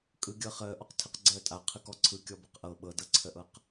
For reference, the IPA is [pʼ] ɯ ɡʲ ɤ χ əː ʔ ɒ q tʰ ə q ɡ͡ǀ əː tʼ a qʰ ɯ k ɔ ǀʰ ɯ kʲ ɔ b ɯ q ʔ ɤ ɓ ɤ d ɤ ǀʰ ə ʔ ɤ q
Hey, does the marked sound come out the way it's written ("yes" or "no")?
no